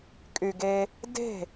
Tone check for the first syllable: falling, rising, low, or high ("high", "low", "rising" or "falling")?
low